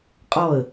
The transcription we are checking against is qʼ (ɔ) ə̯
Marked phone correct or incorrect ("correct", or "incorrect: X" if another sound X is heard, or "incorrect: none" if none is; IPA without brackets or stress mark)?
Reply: correct